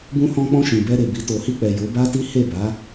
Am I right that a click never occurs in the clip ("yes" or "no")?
yes